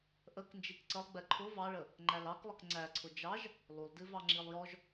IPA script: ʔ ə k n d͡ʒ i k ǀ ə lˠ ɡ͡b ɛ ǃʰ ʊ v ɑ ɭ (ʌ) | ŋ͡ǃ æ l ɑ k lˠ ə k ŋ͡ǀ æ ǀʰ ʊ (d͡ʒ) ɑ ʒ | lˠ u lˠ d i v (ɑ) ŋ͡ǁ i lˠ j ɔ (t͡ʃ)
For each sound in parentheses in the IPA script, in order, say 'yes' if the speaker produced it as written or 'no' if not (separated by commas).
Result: no, yes, yes, no